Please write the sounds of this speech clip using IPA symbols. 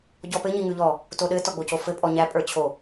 ɟ ɔ p ɘ ɲ i ŋ ʉ ʎ ɔ | t o ɗ ɘ t ɔ ɡ͡b o c o f ɘ pʼ ɔ ɲ æ pʼ ə˞ t͡ɕʰ o

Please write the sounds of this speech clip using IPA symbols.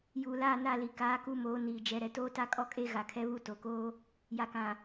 j uː˨ l aː˦˨ n a˦˨ l i˨ k aː˨˦ k u˦ m oː˨˦ n iː˨ d͡ʒ ɛ˨ ɾ ɛ˨ t oː˦ t a˦ kʼ ɔ˦ kʼ e˦ ɣ a˨ kʰ ɛ˦ β u˦ t o˨ k oː˦ | j a˨ k ã˨

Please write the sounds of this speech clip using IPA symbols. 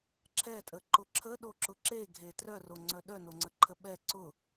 ǁʰ ɛ tʼ ə ǃ ʊ ǁʰ ə ɗ o ǁ ʊ ǁ e ɡʱ e t r œ r o ŋ͡ǀ œ ɗ œ n o ŋ͡ǀ ə ǃʰ ə ɓ ɛ ǀ ʊ

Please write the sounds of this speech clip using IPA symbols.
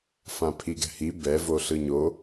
f ã pʰ i ɡ ɛ̤ h i b ɛ v o ɬ ɯ ɲ o

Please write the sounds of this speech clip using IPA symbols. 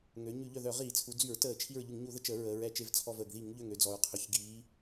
ŋ ø˩˧ ɲ y˧˩˧ ʎ œ˧˩ ð œ˧˩˧ ʁ iː˧˩˧ t͡sʰ u˩˧ d͡z y˧˩˧ ɹ t əː˧˩˧ t͡ʃʰ i˧˩ ɹ ʎ y˧˩˧ ŋ ɲ u˧˩˧ ð ə˧˩ t͡ʃ ə˧˩˧ ɹ əː˩˧ ɹ ɛ˧˩˧ t͡ʃ e˧˩ v t͡sʰ ɔ˧˩ v əː˩ ɡ ð i˧˩˧ ŋ ʎ ø˧˩ ŋ ø˧˩ d͡z ɔ˩ ɹ qʰ œ˩ ç ɡ iː˩˧

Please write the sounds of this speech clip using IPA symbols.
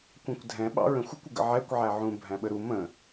kʷ æ̃ kʷ dʱ ɛ̃ ɓ ɑ̰ ɹ ə̃ xʷ ɪ kʷ ɪ ɡ ə̰ ʕ ɛ kʷ ʕ æ ʕ ũ bʱ æ̃ ɓ ə ɾ u m ə̃

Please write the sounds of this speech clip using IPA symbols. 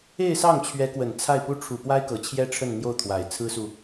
e˥˧ ɪ̯ s ɑ˥˩ ŋ t͡ɕʰ ɥ ɛ˧˥ k w ə˨˩ n t͡sʰ a˥˩ ɪ̯ p u˥ ʈ͡ʂʰ u˨˩ p w a˥ ɪ̯ k ɤ˨˩ t͡ɕʰ j ɛ˥ ʈ͡ʂʰ ə˥˧ n n̪ j o˥˩ ʊ̯ t̪ʰ w a˨˩ ɪ̯ t͡sʰ ɹ̩˥ s u˨

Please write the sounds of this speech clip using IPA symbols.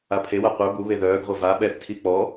a pʰ e w a qʷ œ b u β e ð œː ɡ ʁʷ œ v a ɓ ɛ θ tʰ i k͡p ɔ

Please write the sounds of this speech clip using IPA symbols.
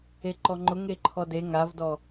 e ǃ ɔ ŋ͡ǃ ʊ ŋ e ǃʰ ɔ d e ŋ a v d ɔ

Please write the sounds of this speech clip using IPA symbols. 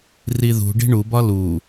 r i ð ṳ ɖ i̤ ɳ u b ɒ l u

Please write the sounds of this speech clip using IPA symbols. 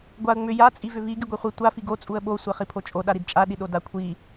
ɡʷ a ə̯ ŋ͡m ʏ j a t͡sʼ i v ʏ v i ɡ i ɡʷ i χʷ i tʷ a f i ɡ o t͡sʼ u ə̯ ɓ o sʷ e χ i pʰ o t͡ʃʼ o ɗ a ɾ i d t͡ʃʼ a ɗ i ɗ o d a kʷʰ i

